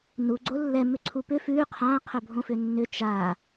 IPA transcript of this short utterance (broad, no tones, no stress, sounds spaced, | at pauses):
n u ɡ͡ǀ o lː ɛ m ʏ ǀʰ u p ʏ f ʉ qʰ ã qʰ ɵ bʱ õ f ʏ nː ʏ t͡ʃ a